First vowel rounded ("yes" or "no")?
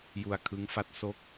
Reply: yes